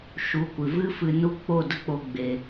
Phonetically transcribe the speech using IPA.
ʃ u˨˦ kʷ ɨ˨ v ɨ˦ f ɨ˧ n u˦ k͡p o˦˨ d ə˦ k͡p o˧ ɡ͡b e˧

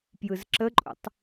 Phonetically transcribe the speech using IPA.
p j ɯ z ǁ ə ǃʼ ṵ tˤ

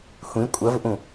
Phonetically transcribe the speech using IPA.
xʷ ĩ kʷʼ ɐ v ʔ ũ

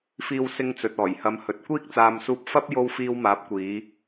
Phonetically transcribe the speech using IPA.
f iː˧ w s ɪ˧ ŋ t͡s ɵ˨ t̚ ɔː˨˩ j h ɐ˨˧ m h ɵ˨ t̚ kʷ iː˥ k̚ t͡s aː˧ m s uː˧ p̚ f ɐ˥ p̚ j o˥ w f iː˧ w m aː˨˥ p̚ kʷ iː˨˧

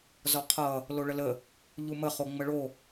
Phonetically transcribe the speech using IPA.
z ɔ qʰ ʌ | l o ɭ ə l ə | ʎ u m ə χ o ŋ͡m ə ɭ o

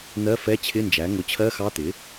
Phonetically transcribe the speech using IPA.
n̪ ɜ˧˥˧ f ɛ˧˥˧ t͡ɕʰ ɪ˧˥˧ n d͡ʒ æ˩˥ ŋ ʊ˩˥ t͡ɕʰ ɜ˧˥˧ x ɑ˧˥˧ t̪ ɪ˩˥

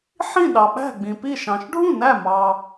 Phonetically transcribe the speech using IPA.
ħ ĩ˥˩ ɗ ɑ˩ ɓ æ̤˥˩ ɡ͡b ĩ˩ p i˥˩ ʃ ɑ̃˩ ʃ ɖʱ ũ˥˩ n æ˥˩ m ɑ˩

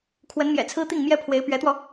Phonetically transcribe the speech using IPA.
kʰ w ə˧˥ n m j ɛ̰˨˩ t͡sʰ ɹ̩˥ t̪ i˥˩ ŋ m j ɛ˥ pʰ w e˧˥ ɪ̯ p ɥ ɛ˧˥ t̪ w ɔ˧

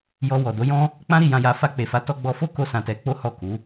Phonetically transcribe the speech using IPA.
j ɔ˧ w ɔ˨ d o˨˦ j ɔ̃˦ | k͡p ã˦ ɾ i˧ j ã˧ j a˧ f a˧ k͡p e˨ f a˨˦ t ɔ˧ ɡ͡b ɔ˧ f o˦ k o˦ s ã˧ t ɛ˧ k͡p o˦ h ɔ˦˨ k u˨˦

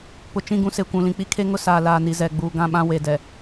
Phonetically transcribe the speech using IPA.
p ʊ˨ t͡ʃ ĩ˦˨ ɡ ũ˦ s e˨ kʷ ũ˨ l ĩ˨ k͡p i˦ kʰ e˦ ŋ ʊ˦ s aː˨ l aː˨ n i˨ z ɛ˨ ɡ͡b uː˨ ɡ ã˦˨ ɓ ã˦ w e˨ d ɛ˨

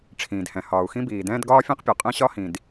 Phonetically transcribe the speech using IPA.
ʈ͡ʂʰ ĩː˩ d h ɛ̃˩ h ɒː˩ u̯ x ĩ˥ b iː˩ d ɛ̃ː˥ d ɡ ɒː˥ fʲ ẽ˥ q pʲ ɒ˩ qʼ ɛ̃˥ ɕ ɒ˥ h ĩ˩ d

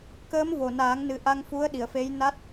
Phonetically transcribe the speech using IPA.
k əː˧˥ m v o˨˩ n aː˨˩˦ ŋ n ɨ˨˩˦ ʔ a˧ ŋ f u˧˥ ə̯ ɗ i˨˩˨ ə̯ f e˧˥ j n a˦˥ t̚

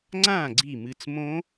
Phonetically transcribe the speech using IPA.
ŋ͡ǀ ãː˥˨ ɡ͡ǀ i˥˨ m ɨ˦˥ t͡s m õ˦˥

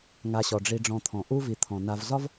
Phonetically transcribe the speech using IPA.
ŋ a˨ ɕ ɔ˩ ɖ͡ʐ i˨ ɖ͡ʐ ɔ̃˨ t̪ʰ ɔ̃˩ ʔ u˦ v i˨ t̪ʰ ɔ̃˩ n a˨ v z ɒ˥ v

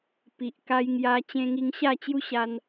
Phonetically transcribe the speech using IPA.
p i˨ ʔ k a˧ j ŋ j a˧ t͡ɕ ẽ˧ ŋ i˧ ŋ ɕ a˥˧ t͡ɕ j u˦ ɕ a˧ n

